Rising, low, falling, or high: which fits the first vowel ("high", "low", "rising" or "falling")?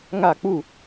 falling